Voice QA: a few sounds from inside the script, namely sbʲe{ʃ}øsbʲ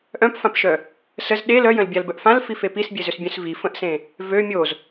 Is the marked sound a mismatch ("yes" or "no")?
yes